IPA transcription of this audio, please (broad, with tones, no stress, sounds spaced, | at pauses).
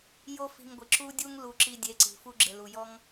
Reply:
j o˦ f i̤˧ ŋ ɡʷ ɪ˨ ǁ u˦ dʲ u˦ ŋ l u˧ ǁ i˧ dʲ e˨˦ ǀ i̤˨ f u˧ ɡ͡ǁ ɪ˨ l u˨ j ɔ˦ ŋ